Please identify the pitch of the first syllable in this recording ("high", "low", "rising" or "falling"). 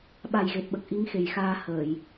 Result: low